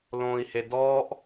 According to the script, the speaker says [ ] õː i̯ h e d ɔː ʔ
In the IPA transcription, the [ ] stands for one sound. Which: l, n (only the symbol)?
l